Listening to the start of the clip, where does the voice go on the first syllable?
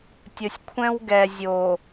low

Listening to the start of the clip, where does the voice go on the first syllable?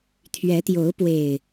rising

